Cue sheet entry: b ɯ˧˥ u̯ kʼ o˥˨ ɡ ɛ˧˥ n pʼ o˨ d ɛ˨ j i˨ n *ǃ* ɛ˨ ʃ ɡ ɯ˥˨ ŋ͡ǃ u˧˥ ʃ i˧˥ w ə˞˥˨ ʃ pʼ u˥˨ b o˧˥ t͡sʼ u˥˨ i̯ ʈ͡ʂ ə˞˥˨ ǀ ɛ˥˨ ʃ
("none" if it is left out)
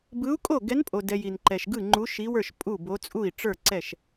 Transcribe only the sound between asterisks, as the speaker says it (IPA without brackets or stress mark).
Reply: ǃ